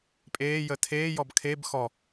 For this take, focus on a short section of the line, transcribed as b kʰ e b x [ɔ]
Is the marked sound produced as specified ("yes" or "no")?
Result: yes